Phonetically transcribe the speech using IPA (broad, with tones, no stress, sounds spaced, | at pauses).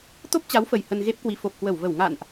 t̪ o˦˥ p̚ t͡ɕ a˨˦ w f ə˨˩ j h ə˧ n ɣ e˦˥ p̚ k w i˨˦ f o˨˩ p̚ k w ə˧˩ w v ə˧˩ w ŋ a̰˧˨ n ʔ